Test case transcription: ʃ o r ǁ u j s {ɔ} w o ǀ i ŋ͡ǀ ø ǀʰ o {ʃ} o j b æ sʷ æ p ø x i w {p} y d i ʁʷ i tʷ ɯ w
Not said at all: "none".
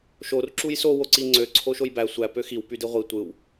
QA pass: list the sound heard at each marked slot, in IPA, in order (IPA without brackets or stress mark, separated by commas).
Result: o, ʃ, p